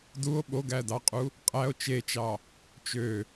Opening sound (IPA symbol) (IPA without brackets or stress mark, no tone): d